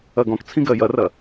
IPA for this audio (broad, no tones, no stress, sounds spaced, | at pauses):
ɐ ɡ ɔ̃ k t͡sʰ ĩ ɡ ɜ j ɐ r ɐ